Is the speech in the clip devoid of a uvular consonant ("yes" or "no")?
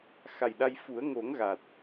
yes